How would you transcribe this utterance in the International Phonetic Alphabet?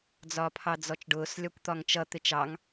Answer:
d͡z ɒː pʰ ɑ d͡z ɔ t͡ʃ ɖ ʊː s lʲ ɒ kʷ t̪ ɒ ŋ t͡ʃ ʌ t̪ ɪ t͡ʃ ɑ ŋ

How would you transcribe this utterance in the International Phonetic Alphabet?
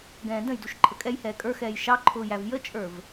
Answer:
ɡ ɛ̃ː d ə̃ j d u ʃ ǃʰ ə kʼ ɛ j h ɛː kʼ ə˞ x ɛː j ʃ ɑ ǃʰ ʊː j æ v j ə t͡ʃʼ ə˞ v

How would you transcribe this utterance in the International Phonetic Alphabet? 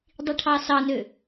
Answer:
dˤ i ʈʰ ɑ s ɑ n ø

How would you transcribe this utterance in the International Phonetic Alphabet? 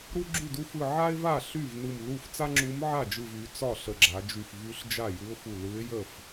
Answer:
ɾ u˥ ɡ͡ǁ y˥˩ d u˥ f ɯ˧˩ ʕ a˥ ɪ̯ v a˥˩ ɬ y˥˩ v n ɯ˧˩ m l u˥˩ f t͡s a˥ ŋ͡ǁ u˧˥ m ʕ a˥˩ d͡ʒ ɯ˧˩ v y˩˧ t͡s ɒ˥˩ ɬ ə˧˩ ɡ͡ǁ a˩˧ d͡ʒ y˧˩ f v y˧˥ ɬ d͡ʒ a˥˩ j ɯ˧˥ ʊ̯ f u˧˩ l ɯ˧˥ ɪ̯ j ə˥˩ f

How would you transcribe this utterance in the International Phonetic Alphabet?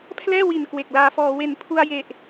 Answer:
pʰ l ɛː˥˩ w i˨˩ n k w e˨˩ k̚ l aː˧ f ɔː˧ w e˨˩ n pʰ u˧ a̯ j e˨˩ ʔ

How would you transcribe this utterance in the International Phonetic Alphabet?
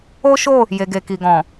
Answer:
o˦ ʃ o˦˨ | j e˨ ɡ e˨ k i˨ ɡ ɔ̃˨

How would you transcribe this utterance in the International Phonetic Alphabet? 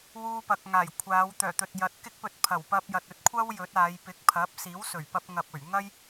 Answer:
w uː˧ p ɐ˨ k̚ ŋ aː˨˩ j kʷʰ aː˨˧ w t̪ œː˨˩ t̪ ɵ˨ t̚ j ɐ˨˥ t̚ k ɪ˥ k̚ p ɵ˧ t̚ pʰ ɐ˨˩ w p ɐ˧ p̚ j ɐ˨ t̚ ɵ˧ t̚ kʷʰ ɐ˥ w j ɵ˨˥ t̚ aː˨˧ j p ɪ˨˥ k̚ pʰ ɐ˨˥ p̚ s iː˨˥ w s ɵ˨˩ ɥ p ɐ˧ p̚ ŋ ɐ˨ p̚ ɵ˨˩ ɥ ŋ ɐ˥ j

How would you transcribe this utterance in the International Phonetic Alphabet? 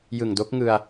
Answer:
j ɯ˨˩ ŋ d o˦˥ k̚ ŋ ɯ˧ a̯

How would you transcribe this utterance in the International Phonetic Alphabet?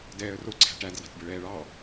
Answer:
d ɛː ə̯ r o ǀʰ æ̤ ʈ æ d r ɑ̤ tʲ b ə ɭ ɛː ɭ ɑ

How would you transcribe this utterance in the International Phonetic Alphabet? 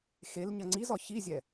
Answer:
x e l ɲ ɐ ŋ͡ǀ i z ɒ ç i zʲ ɛ

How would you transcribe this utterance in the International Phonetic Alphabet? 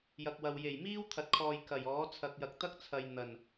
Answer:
j ɐ˨ k̚ w ɐ˨ w j e˨˩ j m iː˥ w t̪ʰ ɐ˨ t̚ kʰ ɔː˨ j k ɐ˨˩ j ɔː˨˥ t͡sʰ ɐ˨ k̚ j ɐ˨ k̚ t̪ ɐ˥ k̚ t͡sʰ ɐ˧ j n̪ ɐ˨˩ n

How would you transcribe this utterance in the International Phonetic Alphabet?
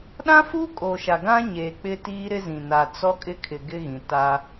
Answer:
ɗ ã˦ f uː˦ kʼ o˨ ʃ a˨ ɡ ã˦ ɲ eː˨ k͡p ɪ˦ t iː˦ ɾ ɪ˦ z ĩ˨ n a˨ t͡s ɔ˦ kʼ ɪ˦ kʰ ɪ˨ ɡ ɪ˦ ɣ ĩ˨ t a˦

